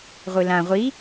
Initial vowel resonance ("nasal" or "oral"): oral